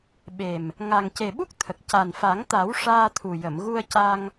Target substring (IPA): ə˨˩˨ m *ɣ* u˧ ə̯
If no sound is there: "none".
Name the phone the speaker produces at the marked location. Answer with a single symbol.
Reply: ɣ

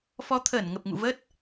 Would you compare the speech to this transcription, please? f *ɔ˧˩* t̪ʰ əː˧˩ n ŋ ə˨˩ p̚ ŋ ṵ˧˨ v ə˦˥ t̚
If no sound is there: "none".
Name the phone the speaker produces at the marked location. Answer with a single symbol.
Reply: ɔ˨˦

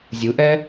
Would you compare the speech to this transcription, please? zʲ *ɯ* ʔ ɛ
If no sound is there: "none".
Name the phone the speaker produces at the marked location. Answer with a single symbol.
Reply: ɯ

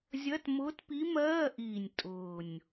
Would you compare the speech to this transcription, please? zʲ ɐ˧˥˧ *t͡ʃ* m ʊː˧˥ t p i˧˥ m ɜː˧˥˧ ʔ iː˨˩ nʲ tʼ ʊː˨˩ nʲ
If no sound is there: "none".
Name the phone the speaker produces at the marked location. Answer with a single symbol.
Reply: t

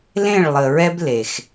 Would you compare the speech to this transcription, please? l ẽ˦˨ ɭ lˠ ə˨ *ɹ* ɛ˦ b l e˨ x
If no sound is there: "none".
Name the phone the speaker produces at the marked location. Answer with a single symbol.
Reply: ɹ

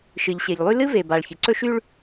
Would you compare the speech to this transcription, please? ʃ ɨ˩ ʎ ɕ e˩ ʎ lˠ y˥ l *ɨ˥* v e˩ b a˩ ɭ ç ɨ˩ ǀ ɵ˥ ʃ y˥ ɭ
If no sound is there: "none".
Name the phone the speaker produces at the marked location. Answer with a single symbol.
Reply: ɨ˥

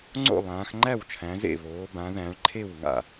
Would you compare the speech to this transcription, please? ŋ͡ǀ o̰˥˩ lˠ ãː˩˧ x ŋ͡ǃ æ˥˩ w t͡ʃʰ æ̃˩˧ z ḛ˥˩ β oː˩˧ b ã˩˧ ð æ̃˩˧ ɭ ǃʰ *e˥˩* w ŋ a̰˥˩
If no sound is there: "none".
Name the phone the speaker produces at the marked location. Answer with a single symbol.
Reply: e˥˩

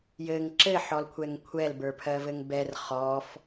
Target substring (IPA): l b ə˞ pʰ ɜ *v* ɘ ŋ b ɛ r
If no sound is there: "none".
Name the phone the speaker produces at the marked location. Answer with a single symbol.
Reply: v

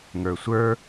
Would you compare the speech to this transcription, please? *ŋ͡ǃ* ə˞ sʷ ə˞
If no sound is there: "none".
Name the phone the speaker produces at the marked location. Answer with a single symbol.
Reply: ŋ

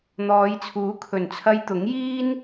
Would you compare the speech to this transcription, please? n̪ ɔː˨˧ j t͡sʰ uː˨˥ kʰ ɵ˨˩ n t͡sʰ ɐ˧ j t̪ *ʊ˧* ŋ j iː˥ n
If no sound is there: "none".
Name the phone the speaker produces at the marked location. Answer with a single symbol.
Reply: ʊ˨˥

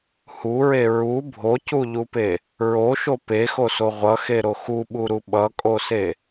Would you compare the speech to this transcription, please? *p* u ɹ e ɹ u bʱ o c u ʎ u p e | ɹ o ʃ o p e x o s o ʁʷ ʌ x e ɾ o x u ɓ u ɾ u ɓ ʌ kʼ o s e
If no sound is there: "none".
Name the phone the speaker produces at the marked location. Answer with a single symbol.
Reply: h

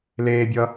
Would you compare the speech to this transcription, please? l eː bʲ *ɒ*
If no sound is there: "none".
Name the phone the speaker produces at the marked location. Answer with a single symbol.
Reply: ʌ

